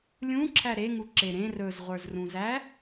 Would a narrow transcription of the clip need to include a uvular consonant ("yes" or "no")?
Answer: yes